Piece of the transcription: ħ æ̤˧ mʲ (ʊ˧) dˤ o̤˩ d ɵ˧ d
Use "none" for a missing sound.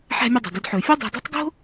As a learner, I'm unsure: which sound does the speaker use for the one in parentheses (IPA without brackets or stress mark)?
ɵ˧